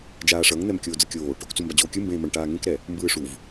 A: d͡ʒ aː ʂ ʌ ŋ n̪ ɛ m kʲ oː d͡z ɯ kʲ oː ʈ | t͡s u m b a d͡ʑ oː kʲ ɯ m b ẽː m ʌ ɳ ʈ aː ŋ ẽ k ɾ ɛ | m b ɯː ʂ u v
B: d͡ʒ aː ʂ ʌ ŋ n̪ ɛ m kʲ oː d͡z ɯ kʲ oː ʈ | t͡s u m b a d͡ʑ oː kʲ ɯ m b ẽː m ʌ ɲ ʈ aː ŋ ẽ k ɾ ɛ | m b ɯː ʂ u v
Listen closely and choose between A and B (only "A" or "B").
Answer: A